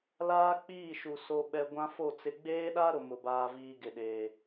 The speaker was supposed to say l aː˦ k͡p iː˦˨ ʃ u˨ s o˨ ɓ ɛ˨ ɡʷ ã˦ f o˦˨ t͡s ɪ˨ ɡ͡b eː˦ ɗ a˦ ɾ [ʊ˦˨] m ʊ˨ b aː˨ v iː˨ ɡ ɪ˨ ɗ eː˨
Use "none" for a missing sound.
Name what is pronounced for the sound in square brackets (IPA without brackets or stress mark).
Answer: ʊ˨